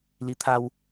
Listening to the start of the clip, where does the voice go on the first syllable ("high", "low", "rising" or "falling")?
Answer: rising